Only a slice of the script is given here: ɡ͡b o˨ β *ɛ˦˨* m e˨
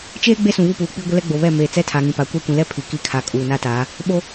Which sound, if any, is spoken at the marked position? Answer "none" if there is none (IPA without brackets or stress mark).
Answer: ɛ˦˨